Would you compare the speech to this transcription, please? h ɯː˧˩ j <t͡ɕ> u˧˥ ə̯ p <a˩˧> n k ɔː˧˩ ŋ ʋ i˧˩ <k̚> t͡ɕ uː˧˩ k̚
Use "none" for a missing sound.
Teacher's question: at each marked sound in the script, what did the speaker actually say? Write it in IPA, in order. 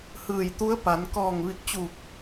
t̪, a˩˧, k̚

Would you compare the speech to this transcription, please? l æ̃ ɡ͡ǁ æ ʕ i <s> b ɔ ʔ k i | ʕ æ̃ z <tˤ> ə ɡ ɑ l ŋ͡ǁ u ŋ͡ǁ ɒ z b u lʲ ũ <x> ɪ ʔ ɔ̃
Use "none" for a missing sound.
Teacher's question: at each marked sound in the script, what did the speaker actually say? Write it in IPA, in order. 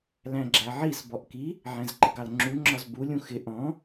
s, ǃ, x

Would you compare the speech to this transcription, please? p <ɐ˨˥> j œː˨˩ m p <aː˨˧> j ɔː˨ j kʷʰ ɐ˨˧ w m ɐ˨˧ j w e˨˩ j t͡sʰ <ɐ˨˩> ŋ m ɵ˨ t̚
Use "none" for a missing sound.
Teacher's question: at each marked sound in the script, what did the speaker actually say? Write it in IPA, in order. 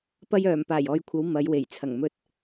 ɐ˧, aː˨˩, ɐ˨˩

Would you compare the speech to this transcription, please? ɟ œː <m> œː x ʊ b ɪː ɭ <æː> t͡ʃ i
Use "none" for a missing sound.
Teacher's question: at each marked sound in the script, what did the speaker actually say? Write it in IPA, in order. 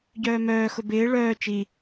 m, œː

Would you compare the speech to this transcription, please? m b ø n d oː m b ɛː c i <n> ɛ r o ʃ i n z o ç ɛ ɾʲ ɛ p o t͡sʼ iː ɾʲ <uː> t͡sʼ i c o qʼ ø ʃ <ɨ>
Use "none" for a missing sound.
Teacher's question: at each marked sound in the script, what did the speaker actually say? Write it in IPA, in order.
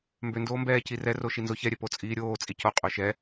r, oː, ɛ

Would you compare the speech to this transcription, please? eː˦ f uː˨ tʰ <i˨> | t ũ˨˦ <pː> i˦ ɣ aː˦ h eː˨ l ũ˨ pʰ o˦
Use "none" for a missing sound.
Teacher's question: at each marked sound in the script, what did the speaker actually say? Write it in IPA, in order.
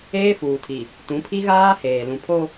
i˨, pʰ

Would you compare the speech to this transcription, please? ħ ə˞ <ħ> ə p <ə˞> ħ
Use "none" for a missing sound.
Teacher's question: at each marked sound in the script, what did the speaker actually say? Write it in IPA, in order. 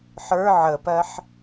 ʕ, ɜ

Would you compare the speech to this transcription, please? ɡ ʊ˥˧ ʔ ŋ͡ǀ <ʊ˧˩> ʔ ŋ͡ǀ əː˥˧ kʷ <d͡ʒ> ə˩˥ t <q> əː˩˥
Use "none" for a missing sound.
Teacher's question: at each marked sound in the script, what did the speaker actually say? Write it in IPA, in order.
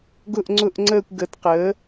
ʊ˥˧, ɡ, q

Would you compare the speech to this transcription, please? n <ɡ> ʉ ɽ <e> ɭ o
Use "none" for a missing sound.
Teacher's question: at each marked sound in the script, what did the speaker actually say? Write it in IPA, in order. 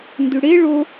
d, e

